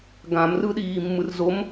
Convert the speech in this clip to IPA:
ɡãmrɯɗiː mːɯrzom

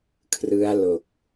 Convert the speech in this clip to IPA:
kʰrɯ˦˥a̯lo˨˩k̚

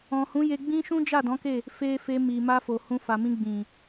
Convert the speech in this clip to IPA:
ɔ̃˨hũ˨˦je˧ɡ͡bĩ˦ ʃũ˦d͡ʒa˦˨dɔ̃˨˦ke˦˨ | fe˧fe˧ mi˨ ma˧fo˨hũ˧fa˨ mĩ˧ɡ͡bĩ˨

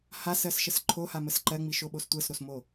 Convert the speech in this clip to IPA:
hasɜsʃəs ǃʰohaməs ǃɜŋ͡miʃoɓos tʷɜsɾosmo

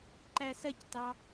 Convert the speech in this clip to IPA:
ǃæsɐctɑ

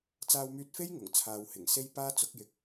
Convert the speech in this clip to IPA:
t͡saː˧wmyː˧t̚fe˥j ŋʊ˨˩ŋt͡sʰaː˨whɪ˨˩ŋ se˥jpaː˥t͡sʊ˨˥k̚jɪ˨˥k̚

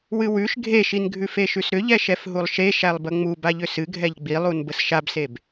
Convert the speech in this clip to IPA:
wɨwʉʃ ɡʱeʃin ɡʱʉfeʃʉsɾʏ ʎɛʃɛfɦulˠʃe ʃælˠbəŋ͡mu baʎʏsɨɡʱɛʎ ɡ͡bilˠun bəsʃabseb

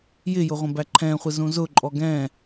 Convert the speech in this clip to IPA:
jɪjʊʁʷə̃bæ ǃʰɛ̃χʷɪzũ zʊǃʼɔ ɡɛ̃

